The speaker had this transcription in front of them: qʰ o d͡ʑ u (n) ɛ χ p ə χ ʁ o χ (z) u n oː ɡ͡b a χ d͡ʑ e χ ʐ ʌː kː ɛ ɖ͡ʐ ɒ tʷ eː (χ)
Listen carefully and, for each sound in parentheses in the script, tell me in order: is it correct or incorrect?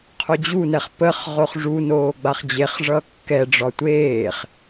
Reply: correct, incorrect, correct

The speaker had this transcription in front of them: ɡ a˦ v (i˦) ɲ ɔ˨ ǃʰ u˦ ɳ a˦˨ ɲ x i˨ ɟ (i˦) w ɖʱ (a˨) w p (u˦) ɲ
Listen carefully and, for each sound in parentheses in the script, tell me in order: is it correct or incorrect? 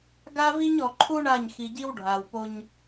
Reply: correct, correct, correct, incorrect

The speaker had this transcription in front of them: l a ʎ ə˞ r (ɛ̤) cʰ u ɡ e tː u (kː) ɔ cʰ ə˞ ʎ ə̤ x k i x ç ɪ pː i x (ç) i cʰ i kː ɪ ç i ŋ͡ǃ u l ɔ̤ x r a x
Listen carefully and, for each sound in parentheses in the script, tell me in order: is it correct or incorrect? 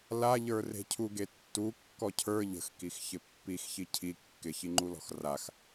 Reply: incorrect, correct, correct

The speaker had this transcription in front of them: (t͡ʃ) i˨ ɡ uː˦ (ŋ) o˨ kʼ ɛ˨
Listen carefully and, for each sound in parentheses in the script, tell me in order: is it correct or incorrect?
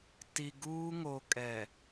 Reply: incorrect, correct

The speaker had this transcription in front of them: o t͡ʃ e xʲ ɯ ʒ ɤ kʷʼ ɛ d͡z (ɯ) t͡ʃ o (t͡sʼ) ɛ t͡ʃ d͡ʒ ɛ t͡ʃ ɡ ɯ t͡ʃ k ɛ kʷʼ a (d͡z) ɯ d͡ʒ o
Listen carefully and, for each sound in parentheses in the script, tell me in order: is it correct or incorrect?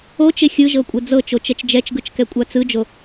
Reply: incorrect, incorrect, incorrect

